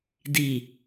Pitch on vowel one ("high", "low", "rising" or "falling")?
low